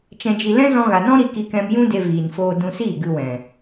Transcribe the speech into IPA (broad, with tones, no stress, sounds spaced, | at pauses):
t͡ʃ ɛ̃˧ d͡ʒ i˧ l ɛ̃˦ z ɔ̃˧ ɣ a˨ n ɔ̃˦ ɾ i˦ k i˧ k ɛ̃˧ m j ũ˦ d e˧ v iː˨ n f oː˧ d ũ˧ s iː˦˨ ɡ ɨ˧ w ɛ̃˨